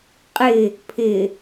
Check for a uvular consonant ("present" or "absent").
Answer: present